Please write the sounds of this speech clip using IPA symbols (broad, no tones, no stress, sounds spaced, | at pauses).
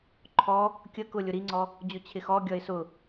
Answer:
ǃʰ ɔ | kʲ ə k ʊ lʲ ʊ ɾ i ŋ͡ǀ ɔ | d͡ʑ ʊ t͡ɕʰ ɪ x ɔ ɡʲ ʌ ɪ̯ s ʊ